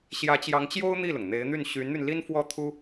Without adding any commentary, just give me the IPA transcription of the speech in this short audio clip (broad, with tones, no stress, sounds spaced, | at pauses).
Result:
ɕ j ä˧˥ t͡ɕ j ɑ˧˥ ŋ t͡ɕ j o˥ ʊ̯ n̪ i˥˩ l ʊ˩ ŋ n̪ e˧˥ ɪ̯ n̪ y˥˩ n ɕ y˧˥ n n̪ y˧ n l i˥ n f w ɔ˥˩ t̪ʰ u˥